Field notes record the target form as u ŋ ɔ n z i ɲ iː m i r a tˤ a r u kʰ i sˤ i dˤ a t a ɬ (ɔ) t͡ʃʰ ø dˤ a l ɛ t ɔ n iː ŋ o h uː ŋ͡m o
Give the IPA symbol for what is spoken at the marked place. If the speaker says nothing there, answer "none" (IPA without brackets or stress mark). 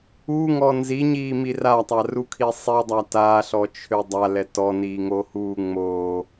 ɔ